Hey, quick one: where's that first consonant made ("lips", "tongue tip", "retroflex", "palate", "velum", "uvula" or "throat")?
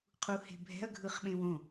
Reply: uvula